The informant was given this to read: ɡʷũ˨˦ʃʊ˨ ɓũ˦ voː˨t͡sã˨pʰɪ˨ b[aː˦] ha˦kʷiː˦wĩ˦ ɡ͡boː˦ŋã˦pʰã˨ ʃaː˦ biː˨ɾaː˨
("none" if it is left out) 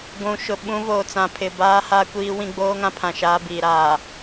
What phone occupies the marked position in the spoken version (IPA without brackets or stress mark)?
aː˦